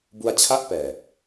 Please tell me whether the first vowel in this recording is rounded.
yes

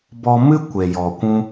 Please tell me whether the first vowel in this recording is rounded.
yes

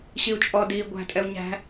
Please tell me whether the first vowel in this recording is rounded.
no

